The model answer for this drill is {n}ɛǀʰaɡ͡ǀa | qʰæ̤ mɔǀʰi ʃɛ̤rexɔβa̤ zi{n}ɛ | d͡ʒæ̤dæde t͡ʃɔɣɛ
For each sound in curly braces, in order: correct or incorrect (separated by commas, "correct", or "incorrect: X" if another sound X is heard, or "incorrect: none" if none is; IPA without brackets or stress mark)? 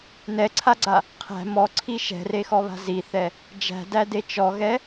correct, incorrect: θ